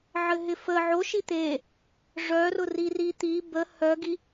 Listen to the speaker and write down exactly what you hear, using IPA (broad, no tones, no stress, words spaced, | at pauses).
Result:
ʕɘɦɪfə ʕo ʃit̪e | ʐœrʊri rit̪i bə hœɡi